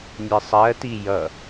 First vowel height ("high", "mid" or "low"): high